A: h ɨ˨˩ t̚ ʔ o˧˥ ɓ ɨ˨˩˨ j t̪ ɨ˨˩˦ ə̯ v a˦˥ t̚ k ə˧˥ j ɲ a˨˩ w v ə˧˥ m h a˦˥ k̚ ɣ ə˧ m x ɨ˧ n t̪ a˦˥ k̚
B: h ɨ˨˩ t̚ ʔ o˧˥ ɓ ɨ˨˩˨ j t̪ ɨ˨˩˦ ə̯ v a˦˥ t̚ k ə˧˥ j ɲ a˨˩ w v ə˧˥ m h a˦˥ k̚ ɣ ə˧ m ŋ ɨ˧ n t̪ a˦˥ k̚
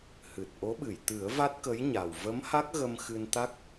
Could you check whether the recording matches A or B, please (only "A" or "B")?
A